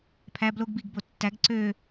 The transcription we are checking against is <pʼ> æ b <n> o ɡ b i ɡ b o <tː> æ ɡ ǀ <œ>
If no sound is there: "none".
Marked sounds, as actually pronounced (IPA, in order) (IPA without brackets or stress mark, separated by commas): pʰ, l, tː, ø